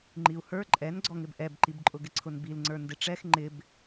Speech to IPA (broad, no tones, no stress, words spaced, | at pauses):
ŋ͡ǃiu̯hə˞ ǃʼɛn ɡ͡ǀɔŋɪbʔɛbǃib ǃʼʊɡɪǀʰʊnbil ŋ͡ǀə˞ndɪʈ͡ʂɛx ŋ͡ǃɪb